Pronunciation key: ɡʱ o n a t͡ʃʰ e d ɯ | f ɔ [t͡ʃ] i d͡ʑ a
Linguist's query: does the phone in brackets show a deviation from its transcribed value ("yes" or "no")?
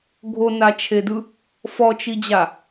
no